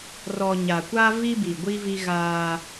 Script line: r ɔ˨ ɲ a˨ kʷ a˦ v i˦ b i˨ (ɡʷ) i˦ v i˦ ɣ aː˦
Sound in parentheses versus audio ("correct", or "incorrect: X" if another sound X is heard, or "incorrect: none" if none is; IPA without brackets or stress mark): correct